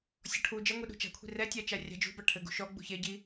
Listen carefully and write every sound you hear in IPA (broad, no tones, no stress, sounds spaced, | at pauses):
sʲ ɔ ʈʰ u d͡ʒ ɐ ŋʷ i ɗ ṳ t͡ʃ a̤ kʷʰ i̤ r ɛ tʲ a t͡ʃ a rʲ a̤ d͡ʒ ṳ b a ʈʰ ɘ ɡ ṳ ʃ ɔ ɡ͡b ṳ ç e ɟ i